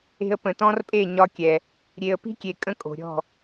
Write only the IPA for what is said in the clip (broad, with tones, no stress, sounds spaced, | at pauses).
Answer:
e̤˧ ə̯ p ə̃˨ t ɔ̃˦ r pʼ e˦˨ ɲ ɒ˦ kʲ ɛ˨ | ɾʲ e˨ ə̯ p i̤˦ kʲ e˨ kʼ ə̃˦ kʼ o̤˨ ɾʲ ɔ̤˦˨